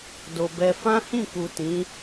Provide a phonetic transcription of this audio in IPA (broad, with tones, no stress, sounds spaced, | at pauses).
d o˨ b ɛ˧ f ã˦ h ĩ˦˨ k u˨ t ĩ˨˦